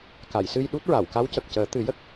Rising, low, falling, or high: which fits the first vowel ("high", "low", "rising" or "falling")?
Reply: low